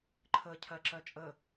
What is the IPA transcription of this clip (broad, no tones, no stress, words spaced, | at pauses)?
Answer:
ǃʰə cʰɜǁɜt͡ʃʼə